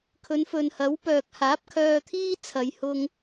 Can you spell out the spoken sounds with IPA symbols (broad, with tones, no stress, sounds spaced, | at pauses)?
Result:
kʰ ɵ˨˧ n f ɵ˨ n h ɐ˨˥ w p œː˨ k̚ h aː˨˥ p̚ kʰ œː˧ t̪ʰ iː˥ t͡sʰ ɐ˨˧ j h ʊ˧ ŋ